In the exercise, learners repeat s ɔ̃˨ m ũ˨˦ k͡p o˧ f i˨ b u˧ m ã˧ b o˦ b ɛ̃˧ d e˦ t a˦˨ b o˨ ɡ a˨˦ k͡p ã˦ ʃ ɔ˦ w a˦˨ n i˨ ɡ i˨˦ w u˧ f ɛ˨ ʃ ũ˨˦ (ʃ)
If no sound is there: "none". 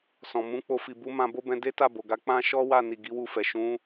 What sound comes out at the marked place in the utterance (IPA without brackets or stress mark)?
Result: none